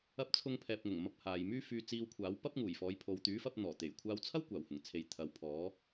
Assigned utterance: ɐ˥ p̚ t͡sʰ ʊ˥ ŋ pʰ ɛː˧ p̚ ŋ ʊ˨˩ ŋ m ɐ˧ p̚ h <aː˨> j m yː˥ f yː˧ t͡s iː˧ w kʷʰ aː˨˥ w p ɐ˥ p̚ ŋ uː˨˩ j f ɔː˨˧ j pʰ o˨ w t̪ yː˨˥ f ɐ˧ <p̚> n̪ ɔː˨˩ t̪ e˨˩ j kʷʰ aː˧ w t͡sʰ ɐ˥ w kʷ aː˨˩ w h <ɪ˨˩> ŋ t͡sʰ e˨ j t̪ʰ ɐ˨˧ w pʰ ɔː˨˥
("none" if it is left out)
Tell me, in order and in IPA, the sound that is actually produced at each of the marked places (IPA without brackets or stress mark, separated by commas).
aː˨, p̚, ɪ˨˩